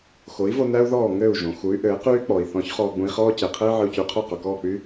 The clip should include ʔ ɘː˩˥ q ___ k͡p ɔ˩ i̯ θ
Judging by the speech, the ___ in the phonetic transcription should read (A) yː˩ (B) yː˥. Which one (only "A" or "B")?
B